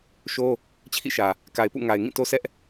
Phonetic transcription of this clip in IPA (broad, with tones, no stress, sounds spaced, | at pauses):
ʃ o˦ | t͡ɕʰ ḭ˦˨ ʃ ä˨ | k a˨ ɪ̯ p ṵ˦˨ ŋ a˨ ɪ̯ ŋ ĩ˦˨ t o˦ sʰ ɛ˦ ʔ